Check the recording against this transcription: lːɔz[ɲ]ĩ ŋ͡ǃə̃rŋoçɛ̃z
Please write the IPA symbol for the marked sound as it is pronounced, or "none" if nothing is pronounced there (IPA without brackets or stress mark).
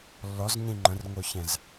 ɲ